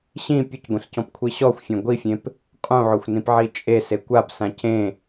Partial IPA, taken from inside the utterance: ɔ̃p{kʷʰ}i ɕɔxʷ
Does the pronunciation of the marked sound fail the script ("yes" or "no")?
no